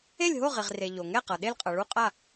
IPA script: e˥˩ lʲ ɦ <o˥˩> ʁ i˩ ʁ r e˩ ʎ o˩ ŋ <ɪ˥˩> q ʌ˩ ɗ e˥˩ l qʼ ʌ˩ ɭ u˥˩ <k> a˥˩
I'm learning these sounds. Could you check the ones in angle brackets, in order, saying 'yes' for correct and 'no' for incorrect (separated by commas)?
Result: yes, no, no